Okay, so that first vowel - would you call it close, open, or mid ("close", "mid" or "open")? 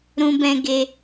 close